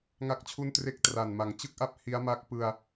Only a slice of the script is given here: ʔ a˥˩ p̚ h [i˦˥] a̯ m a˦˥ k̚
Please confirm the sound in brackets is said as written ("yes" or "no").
yes